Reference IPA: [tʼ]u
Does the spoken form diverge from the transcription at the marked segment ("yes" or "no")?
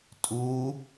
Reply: no